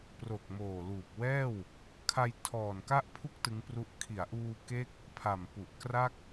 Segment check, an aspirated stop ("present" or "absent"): present